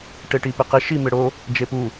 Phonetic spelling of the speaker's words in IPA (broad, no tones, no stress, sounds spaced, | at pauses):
ʈ e ʈ i p ɪ q ɪ ʃ i m ɪ ɽ o | d͡ʒ e p u